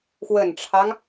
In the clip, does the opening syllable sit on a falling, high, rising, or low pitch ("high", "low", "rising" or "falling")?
low